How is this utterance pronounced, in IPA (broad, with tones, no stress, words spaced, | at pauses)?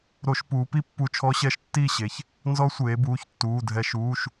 ɾo˧˩˧ʃpuː˩˧pi˥˨pːu˧˩˧ t͡ʃʰɔ˦˥ɕɛ˦˥ʃtːiː˥˨ɕe˩˧ç | nzɔ˦˥sʷeː˩˧ buː˩˧˩çtːuː˩˧˩dʱɛ˧˩˧ʃ uː˩˧˩ʃ